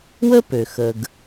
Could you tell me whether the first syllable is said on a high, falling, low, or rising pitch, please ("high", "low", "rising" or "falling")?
high